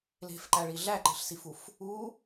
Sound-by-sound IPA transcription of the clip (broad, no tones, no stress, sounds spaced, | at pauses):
l e̤ f ǃ æ ɭ i ɮ æ ǃ e̤ ɬ s i f u f | u